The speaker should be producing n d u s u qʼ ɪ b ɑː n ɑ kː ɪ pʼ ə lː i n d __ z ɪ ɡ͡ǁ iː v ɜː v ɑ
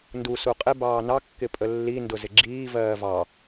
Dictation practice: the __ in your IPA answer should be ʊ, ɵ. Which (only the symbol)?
ʊ